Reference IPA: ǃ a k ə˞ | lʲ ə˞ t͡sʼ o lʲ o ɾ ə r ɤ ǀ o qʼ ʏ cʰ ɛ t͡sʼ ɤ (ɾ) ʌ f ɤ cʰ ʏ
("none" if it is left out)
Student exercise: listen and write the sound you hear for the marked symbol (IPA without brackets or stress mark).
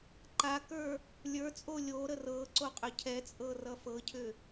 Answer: r